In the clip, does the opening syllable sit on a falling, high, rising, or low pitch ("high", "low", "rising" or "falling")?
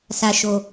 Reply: low